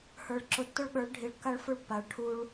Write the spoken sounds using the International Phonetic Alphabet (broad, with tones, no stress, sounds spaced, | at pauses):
h ə˞˨ ɭ ǁ ʊ˨ tː ʊ˦ ɭ ɠ ə˞˨˦ ɭ ɖʱ i˨ ɭ kː a˦ ɭ f ʊ˦ ɭ pː a˨ ɭ ʈʰ u˦ ɭ